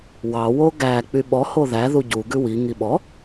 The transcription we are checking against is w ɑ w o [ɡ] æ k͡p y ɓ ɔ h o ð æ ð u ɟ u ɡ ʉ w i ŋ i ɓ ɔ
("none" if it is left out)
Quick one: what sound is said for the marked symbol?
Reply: ɡ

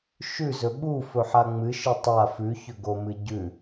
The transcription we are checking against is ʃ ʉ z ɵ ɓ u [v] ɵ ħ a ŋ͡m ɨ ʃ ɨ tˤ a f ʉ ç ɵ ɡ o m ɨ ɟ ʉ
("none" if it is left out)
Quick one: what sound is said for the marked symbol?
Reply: f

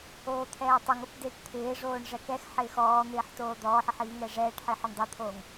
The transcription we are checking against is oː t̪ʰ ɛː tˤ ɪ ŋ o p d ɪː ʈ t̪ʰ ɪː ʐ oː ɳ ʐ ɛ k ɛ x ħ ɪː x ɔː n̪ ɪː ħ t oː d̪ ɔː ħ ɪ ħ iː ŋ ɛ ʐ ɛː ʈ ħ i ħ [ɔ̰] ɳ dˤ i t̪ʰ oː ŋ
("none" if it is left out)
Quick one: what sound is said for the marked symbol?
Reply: ɔ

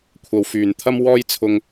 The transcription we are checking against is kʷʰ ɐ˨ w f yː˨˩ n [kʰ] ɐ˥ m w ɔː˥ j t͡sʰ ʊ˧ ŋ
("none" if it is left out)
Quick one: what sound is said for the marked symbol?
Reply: t̪ʰ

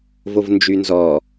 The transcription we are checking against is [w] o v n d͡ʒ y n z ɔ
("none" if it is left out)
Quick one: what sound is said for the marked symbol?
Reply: v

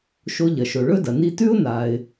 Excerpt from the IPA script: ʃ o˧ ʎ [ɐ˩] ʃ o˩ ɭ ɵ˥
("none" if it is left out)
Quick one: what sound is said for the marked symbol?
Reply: ɐ˩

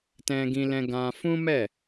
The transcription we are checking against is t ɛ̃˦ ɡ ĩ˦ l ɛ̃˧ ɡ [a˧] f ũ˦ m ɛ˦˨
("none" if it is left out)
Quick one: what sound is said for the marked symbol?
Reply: ã˧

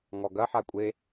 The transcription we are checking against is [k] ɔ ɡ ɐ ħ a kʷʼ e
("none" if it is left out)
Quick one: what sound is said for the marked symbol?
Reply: ŋ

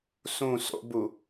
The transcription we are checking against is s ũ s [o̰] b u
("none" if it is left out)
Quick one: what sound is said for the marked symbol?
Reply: o̰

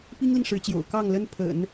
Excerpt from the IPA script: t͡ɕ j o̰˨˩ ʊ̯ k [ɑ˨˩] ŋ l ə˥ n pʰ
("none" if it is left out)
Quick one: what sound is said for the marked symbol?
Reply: ɑ˥˩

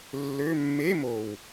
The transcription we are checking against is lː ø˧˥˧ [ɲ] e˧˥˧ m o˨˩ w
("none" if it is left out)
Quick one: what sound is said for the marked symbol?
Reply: mː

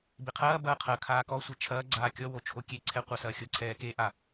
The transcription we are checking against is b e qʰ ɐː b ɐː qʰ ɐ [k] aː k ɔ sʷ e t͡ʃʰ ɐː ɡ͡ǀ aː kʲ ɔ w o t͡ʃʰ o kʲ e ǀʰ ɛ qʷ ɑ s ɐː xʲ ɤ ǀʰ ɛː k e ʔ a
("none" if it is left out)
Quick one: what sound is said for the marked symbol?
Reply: kʰ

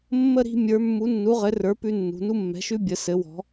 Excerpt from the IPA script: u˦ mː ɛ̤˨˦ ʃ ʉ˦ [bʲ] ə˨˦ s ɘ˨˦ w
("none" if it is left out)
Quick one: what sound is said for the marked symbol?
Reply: bʲ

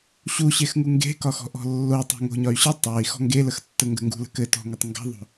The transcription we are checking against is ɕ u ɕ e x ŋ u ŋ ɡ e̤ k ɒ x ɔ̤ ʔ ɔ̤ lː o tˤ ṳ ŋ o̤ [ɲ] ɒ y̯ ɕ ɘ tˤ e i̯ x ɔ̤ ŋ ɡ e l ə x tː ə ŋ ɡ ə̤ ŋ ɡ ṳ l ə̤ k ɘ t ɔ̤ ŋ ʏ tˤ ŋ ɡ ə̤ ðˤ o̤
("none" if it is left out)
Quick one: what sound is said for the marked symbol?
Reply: ɲ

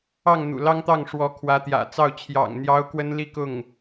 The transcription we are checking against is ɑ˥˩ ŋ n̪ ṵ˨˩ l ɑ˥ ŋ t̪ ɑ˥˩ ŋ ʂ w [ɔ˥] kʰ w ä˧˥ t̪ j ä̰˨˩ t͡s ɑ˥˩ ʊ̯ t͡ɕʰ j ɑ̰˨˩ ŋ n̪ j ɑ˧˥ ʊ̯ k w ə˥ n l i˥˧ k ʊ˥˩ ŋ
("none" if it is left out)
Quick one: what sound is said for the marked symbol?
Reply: ɔ˧˥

